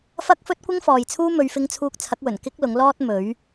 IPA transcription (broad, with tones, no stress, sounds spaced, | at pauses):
f ɐ˥ k̚ f ɵ˥ t̚ kʷ ɪ˥ ŋ f ɔː˨ j t͡sʰ uː˥ m ɵ˨˧ ɥ f ɪ˧ ŋ t͡sʰ uː˧ k̚ t͡sʰ ɐ˨˥ k̚ w ɵ˨˩ n k ɪ˥ k̚ l ʊ˨˥ ŋ l ɔː˥ t̚ m ɵ˨˥ ɥ